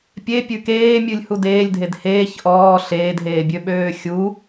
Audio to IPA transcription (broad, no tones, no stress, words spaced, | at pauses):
pʲe pʲʉkeːmʲʉlʲ hudeːlʲdʱed heːç ʔɔː ɬeːdɦeːbʲø ɓøːxʲu